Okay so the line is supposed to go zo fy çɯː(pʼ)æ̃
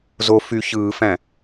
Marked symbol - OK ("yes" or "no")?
no